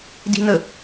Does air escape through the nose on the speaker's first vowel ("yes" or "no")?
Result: no